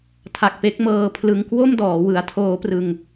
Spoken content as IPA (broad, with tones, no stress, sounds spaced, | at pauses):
tʰ a˨˩ k̚ p e˦˥ k̚ m ɤː˧ pʰ l ɯ˧ ŋ k w o˥˩ m d ɔː˩˦ w ɯ˩˦ a̯ tʰ oː˦˥ p r ɯ˧ ŋ